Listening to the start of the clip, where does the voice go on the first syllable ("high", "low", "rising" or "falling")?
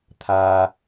low